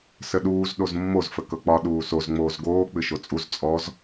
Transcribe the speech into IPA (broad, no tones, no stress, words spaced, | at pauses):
səɗuːz ɗozmːoz fəkɤk͡pɒ ɗuːsoz ŋ͡moːzɡoː k͡pɨʃot͡sʼuz t͡sʼɔz